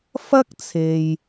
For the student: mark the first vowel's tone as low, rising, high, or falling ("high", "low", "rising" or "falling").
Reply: high